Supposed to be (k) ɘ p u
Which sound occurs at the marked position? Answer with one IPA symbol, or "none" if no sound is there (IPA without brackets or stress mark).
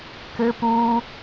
k